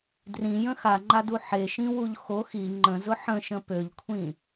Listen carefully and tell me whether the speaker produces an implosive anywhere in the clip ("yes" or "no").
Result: no